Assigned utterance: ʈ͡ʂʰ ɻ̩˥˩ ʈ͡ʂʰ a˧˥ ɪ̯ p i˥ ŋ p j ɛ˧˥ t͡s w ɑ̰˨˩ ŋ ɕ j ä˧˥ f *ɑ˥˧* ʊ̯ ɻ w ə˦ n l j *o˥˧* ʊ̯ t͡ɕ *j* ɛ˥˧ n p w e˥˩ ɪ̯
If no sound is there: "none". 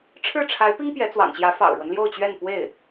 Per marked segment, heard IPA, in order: ɑ̰˨˩, o˥˧, ɥ

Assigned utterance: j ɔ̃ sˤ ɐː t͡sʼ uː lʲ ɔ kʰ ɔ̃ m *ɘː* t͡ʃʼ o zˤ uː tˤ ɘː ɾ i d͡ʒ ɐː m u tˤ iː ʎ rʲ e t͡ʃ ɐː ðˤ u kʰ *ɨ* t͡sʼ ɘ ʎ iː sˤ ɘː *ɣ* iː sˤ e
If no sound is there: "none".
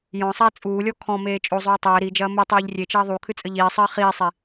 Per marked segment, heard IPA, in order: eː, ɨ, χ

